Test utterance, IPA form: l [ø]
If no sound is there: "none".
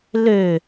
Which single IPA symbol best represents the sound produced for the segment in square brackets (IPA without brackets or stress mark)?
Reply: ø